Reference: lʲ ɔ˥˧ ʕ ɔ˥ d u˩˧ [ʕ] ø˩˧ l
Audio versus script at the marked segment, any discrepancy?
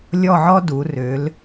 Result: yes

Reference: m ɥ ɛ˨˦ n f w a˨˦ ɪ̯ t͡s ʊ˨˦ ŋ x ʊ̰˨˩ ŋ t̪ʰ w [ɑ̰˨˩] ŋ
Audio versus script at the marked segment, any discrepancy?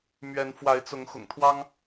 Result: yes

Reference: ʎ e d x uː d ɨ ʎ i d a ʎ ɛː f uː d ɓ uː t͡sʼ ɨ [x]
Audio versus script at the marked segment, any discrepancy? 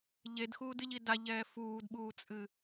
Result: yes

